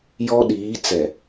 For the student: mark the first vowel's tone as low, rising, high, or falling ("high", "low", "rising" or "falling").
high